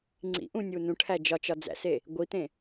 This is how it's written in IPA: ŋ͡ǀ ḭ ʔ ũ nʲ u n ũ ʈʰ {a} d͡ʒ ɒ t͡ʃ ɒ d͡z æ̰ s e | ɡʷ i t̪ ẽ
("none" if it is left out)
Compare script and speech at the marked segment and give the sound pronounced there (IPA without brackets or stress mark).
æ